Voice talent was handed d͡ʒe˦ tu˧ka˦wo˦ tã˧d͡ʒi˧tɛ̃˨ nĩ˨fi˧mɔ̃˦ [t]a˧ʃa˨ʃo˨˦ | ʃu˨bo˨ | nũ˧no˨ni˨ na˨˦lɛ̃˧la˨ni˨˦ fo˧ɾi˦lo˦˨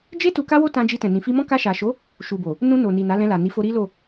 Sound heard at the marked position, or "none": k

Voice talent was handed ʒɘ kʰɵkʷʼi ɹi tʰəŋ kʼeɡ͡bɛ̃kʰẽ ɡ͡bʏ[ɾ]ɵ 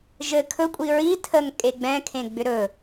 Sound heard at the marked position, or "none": ɾ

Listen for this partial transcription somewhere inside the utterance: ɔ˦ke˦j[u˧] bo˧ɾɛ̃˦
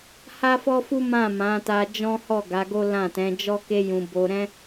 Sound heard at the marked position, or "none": ũ˧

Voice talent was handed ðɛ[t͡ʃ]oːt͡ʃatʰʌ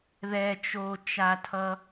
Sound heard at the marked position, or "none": t͡ʃ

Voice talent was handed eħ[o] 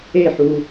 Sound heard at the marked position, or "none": u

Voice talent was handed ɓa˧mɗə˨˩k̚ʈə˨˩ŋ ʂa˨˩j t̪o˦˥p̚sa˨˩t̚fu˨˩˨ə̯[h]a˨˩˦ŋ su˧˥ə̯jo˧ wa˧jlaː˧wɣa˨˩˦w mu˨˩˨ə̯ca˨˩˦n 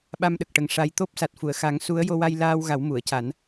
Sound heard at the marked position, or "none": x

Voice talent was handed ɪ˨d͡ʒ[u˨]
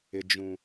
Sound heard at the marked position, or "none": ũ˨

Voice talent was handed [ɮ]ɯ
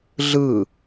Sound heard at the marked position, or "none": ɮ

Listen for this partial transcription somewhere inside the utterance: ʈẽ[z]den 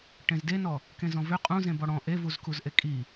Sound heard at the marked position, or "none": z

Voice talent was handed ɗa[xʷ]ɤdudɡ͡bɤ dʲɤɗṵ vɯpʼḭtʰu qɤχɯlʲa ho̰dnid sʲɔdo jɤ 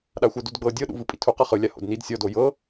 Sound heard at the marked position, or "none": xʷ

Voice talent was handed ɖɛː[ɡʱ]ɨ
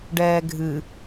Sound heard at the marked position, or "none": ɡʱ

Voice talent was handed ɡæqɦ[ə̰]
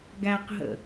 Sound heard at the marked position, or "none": ə̰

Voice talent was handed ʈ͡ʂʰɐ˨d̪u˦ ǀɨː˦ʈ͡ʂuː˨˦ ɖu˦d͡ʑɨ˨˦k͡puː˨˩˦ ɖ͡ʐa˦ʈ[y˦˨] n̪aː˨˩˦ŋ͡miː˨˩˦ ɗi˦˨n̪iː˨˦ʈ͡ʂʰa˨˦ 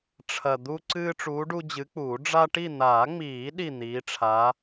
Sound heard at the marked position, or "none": i˦˨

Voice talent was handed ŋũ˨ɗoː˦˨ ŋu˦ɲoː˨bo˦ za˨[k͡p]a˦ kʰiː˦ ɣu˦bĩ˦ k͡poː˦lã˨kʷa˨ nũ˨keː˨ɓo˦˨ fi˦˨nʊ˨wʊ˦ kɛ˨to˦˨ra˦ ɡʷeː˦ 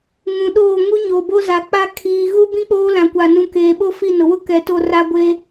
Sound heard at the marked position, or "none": k͡p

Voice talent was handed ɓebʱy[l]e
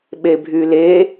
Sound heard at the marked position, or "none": l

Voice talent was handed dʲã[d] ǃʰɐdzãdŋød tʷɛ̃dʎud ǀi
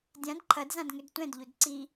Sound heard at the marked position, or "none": d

